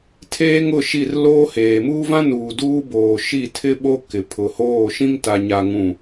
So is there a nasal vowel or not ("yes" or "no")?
yes